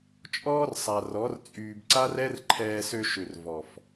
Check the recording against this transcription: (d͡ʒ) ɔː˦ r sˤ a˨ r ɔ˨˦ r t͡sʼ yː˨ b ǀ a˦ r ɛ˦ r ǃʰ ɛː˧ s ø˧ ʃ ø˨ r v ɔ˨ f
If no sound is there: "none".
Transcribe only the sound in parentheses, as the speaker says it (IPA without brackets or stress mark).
t͡ʃʼ